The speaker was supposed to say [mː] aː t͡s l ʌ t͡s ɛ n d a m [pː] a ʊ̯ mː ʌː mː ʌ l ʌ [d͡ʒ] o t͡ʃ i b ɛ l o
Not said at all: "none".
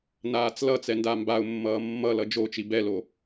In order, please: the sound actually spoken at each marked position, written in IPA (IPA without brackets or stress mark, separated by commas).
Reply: n, b, d͡ʒ